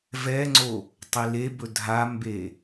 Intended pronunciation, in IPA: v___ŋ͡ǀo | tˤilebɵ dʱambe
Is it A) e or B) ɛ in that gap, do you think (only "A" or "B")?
B